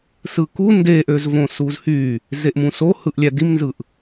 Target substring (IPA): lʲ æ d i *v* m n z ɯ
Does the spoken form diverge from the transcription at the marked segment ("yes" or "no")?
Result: yes